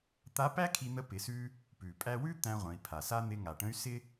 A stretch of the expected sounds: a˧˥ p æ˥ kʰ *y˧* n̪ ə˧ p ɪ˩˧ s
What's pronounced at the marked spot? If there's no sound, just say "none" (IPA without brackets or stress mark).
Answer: i˧